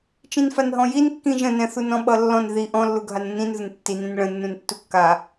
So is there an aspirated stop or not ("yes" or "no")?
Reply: no